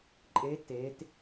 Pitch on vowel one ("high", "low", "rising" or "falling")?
rising